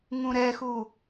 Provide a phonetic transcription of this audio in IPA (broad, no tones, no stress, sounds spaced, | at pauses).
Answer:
ŋ ũ ɾ ɛ x u